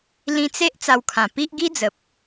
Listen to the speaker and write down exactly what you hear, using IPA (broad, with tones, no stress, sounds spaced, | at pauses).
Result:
l ĩ˧ t͡s e˦ ʔ t͡s a˧ w kʰ ã˨˩ p i˦ ʔ ɡ i˦ d͡z ə˨ p̚